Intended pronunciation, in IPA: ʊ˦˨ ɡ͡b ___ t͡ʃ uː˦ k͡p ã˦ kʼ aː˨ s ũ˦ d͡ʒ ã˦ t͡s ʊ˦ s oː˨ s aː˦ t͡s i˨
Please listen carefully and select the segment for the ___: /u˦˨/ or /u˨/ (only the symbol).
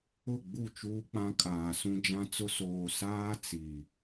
u˦˨